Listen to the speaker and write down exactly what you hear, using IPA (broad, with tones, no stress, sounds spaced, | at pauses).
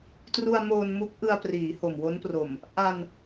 t r u˧ a̯ m oː˧ n m u˦˥ k̚ ʔ ɯ˧ a̯ p r iː˩˦ h o˨˩ m w o˦˥ n p r o˨˩ m | ʔ a˧ n